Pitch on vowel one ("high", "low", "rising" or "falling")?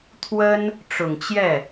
high